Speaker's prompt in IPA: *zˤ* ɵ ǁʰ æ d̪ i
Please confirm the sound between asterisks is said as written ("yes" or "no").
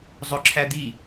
yes